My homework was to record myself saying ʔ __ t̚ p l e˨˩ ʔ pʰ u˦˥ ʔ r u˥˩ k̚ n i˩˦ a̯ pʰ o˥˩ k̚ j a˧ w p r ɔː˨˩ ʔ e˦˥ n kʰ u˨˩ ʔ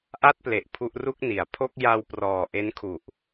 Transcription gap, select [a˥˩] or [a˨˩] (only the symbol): a˥˩